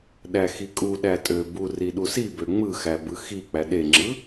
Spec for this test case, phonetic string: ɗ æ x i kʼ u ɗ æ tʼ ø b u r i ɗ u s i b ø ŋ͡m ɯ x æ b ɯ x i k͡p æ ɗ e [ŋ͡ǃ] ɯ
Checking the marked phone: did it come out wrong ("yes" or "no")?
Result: yes